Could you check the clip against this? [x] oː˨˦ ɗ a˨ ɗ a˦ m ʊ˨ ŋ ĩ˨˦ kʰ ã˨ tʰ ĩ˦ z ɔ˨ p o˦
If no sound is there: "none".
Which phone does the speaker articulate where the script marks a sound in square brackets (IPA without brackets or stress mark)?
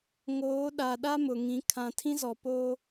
ŋ